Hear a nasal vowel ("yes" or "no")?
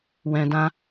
yes